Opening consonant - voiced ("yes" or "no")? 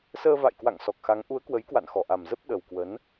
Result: no